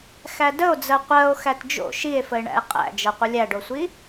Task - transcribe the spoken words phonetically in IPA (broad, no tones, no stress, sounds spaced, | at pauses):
x æ d ə o̯ d͡z ɜ qʷ ɜ o̯ x æ t d͡ʒ o̰ ʃ i e̯ f ə e̯ ɳ æ̰ e̯ qʼ æ̰ d͡ʒ ɤ qʷ ə lʲ æ ɖ o sʷ i